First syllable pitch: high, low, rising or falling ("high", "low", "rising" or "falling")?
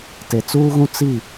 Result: low